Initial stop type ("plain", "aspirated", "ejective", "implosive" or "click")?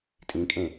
ejective